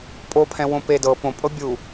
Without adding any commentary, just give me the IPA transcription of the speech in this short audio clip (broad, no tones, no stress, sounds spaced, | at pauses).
pʼ o pʰ ɛ̃ w õ p e d ɤ p õ pʼ ɤ bʲ u